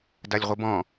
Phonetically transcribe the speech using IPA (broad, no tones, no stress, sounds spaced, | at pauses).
d a lʲ ʁʷ ɯ b ɔ̃